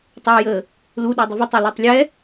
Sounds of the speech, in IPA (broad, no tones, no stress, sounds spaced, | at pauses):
tˤ ɑ j əː | l u ɗ ɔ dˤ ʊ v ʊ tˤ ɑ l ɔ tˤ lʲ ɛ